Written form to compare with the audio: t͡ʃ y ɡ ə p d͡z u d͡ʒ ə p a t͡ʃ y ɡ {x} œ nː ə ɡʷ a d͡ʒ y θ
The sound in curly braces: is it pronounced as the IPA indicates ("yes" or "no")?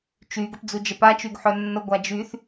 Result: no